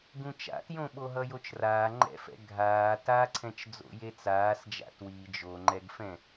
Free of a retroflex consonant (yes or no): yes